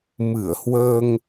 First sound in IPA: m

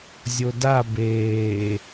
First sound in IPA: zʲ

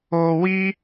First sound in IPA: o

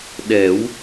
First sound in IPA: ɗ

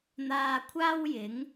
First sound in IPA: n̪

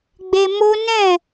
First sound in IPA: ɡ͡b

